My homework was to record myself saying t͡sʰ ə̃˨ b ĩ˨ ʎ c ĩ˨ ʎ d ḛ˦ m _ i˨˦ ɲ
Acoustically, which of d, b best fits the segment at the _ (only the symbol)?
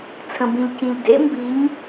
b